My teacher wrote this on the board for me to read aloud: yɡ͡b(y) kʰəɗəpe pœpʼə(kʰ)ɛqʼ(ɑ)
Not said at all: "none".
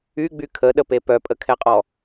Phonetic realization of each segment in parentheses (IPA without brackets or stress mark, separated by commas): y, kʰ, ɔ